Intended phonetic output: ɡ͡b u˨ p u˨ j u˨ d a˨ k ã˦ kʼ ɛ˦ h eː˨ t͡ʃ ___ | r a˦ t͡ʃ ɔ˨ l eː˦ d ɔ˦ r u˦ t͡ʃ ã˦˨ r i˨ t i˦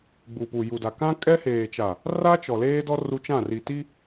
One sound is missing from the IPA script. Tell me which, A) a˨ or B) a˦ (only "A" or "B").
A